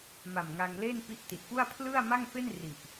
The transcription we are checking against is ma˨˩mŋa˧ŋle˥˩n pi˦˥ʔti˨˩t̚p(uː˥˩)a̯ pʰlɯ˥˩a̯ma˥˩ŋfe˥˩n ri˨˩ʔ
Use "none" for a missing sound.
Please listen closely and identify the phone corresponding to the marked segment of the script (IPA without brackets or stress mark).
u˥˩